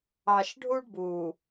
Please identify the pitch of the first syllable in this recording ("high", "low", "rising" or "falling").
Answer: low